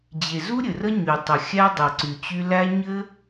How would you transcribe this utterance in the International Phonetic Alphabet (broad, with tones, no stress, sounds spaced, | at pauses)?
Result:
d͡ʑ e˨ z u˦ ɾʲ ɘ˨ r ə˦ ɲ y˨ tˤ ə˨ xʲ æ˦ dˤ ɘ˨ ǀ y˨ t͡ɕ y˧ l æ˦ ɲ ɘ˦